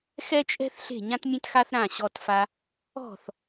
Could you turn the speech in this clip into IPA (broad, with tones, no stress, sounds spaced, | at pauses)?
x ɛ˥ t͡ʃʼ ɛ̤˥ θ ɬ e̤˥˩ ɲ ã˥ t mʲ ẽ˥ t x a˥ θ ɾ ã˥˩ ɕ ɔ˥ t f a˥ | ɔ̤˥˩ θ